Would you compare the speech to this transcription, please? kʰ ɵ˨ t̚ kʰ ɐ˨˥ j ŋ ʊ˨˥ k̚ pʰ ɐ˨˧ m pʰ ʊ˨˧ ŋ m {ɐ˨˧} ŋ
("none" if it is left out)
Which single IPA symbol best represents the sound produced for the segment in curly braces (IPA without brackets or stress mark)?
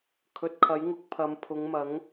ɐ˨˥